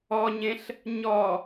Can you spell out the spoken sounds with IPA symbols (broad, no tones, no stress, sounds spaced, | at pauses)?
ɔ ɲ ẽ ɬ | ɲ ɔ